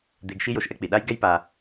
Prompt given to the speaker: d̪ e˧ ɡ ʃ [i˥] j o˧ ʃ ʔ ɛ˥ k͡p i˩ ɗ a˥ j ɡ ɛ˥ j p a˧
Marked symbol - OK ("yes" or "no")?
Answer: yes